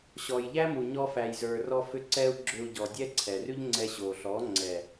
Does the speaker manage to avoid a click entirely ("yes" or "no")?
no